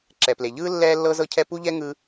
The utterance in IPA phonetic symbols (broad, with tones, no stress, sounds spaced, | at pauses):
ǁ ɛ˩ p l e˩ ʎ ɯː˥ lː ɛː˥ lː ɤ˥ z ɤ˥ cʰ ɛ˥ p u˥ ʎ ɛ˥ ŋ ɯ˥